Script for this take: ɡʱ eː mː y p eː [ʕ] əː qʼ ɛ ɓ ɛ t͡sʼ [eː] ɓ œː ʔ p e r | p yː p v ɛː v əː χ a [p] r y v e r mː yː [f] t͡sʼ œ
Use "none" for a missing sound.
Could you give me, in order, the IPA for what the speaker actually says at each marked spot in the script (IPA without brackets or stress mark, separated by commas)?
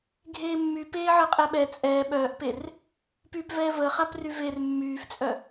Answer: ʕ, ɛː, p, f